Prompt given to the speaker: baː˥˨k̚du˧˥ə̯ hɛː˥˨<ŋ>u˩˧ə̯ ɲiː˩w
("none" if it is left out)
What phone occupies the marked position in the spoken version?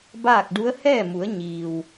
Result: m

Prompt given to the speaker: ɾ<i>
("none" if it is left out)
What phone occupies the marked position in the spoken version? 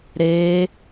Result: e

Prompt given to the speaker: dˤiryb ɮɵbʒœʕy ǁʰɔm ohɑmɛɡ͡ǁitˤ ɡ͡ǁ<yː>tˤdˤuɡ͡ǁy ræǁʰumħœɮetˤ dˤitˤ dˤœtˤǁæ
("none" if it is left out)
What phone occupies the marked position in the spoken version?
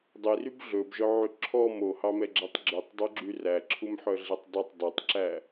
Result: y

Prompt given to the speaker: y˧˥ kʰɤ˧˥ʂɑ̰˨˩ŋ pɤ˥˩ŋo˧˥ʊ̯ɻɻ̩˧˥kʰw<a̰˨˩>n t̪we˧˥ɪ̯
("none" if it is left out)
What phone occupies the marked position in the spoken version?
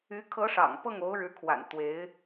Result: a̰˨˩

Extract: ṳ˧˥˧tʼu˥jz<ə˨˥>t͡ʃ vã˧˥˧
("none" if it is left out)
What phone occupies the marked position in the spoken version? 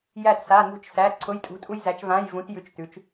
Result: æ˨˥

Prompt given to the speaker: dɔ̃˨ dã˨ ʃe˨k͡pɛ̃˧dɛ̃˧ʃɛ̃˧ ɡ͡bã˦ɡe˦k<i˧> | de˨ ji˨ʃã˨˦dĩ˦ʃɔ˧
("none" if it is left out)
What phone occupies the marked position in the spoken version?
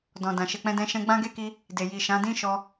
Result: i˧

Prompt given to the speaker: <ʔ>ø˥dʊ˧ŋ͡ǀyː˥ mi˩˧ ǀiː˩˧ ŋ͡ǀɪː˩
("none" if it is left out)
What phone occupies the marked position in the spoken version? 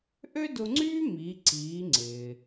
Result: ʔ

